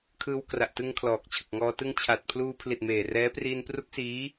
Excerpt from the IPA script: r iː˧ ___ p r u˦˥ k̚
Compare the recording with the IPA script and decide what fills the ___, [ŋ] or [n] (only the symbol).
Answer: n